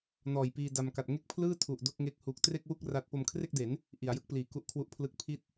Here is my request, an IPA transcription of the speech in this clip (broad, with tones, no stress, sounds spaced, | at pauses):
n ɔː˨˩ j p iː˧ d a˧ m k a˨˩ t̚ ŋ e˥˩ k̚ pʰ l ɯː˥˩ tʰ u˨˩ ʔ d o˥˩ k̚ ŋ e˦˥ k̚ h uː˨˩ k̚ t r e˥˩ k̚ w u˥˩ k̚ r a˦˥ t̚ p o˧ m kʰ r e˥˩ k̚ d e˩˦ n | ʔ i˩˦ a̯ j ɯ˦˥ k̚ p l iː˨˩ k u˦˥ ʔ kʰ w u˦˥ ʔ pʰ l ɯ˦˥ k̚ pʰ i˥˩ t̚